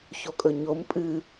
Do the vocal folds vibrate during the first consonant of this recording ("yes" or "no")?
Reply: no